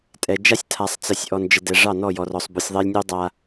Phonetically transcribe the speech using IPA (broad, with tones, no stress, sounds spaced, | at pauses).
tʼ ɛ˨ d͡ʒ a˦ sʲ tʰ a˨ sˤ t͡s ə˨ sʲ ʔ ɔ˨ n d͡ʒ ə˨ d ɛ˨ ʐ ɑ˦˨ n ɔ˦˨ j ɔ˨ r ɔ˨ sˤ b u˨ sʲ ðˤ ɛ˦ lʲ nʲ u˦ dˤ a˦